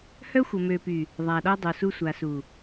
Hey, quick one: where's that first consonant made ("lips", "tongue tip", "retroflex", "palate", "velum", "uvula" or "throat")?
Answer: throat